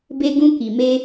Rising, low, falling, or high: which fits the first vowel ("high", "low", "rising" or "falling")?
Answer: high